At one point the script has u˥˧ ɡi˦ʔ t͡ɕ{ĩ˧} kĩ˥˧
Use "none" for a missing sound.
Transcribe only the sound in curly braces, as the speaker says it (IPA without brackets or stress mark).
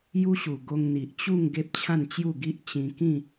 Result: ĩ˧